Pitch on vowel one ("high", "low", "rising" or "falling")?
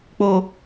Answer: low